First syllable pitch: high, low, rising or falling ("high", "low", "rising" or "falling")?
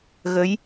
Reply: rising